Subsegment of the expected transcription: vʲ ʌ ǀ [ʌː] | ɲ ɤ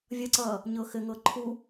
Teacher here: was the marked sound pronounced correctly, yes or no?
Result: yes